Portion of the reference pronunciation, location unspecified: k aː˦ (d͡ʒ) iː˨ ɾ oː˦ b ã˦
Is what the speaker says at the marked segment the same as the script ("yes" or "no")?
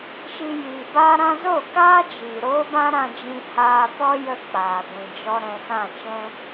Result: yes